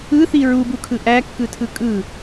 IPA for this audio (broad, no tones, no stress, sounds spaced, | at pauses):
ɯ θ i ɹ u b u kʰ ɯ ʔ æ kː ɯ tʰ ɯ kʼ ɯ